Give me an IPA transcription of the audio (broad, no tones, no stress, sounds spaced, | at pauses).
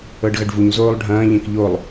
ɤ ɖ ɣ ɐ ɖ v u ɲ z oː lˠ ɖʱ ɐ̃ː ʎ ẽ k ʎ o lˠ